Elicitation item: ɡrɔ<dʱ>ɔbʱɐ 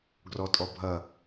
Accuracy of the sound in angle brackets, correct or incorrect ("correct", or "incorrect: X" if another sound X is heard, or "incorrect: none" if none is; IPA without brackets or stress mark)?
incorrect: tʼ